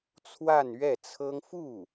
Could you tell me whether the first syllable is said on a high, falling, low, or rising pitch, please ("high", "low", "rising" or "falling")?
falling